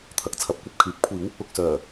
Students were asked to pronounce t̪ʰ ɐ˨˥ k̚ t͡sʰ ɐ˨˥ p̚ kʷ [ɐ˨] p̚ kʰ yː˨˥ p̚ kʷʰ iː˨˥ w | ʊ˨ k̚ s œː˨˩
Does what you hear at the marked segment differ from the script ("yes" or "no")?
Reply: no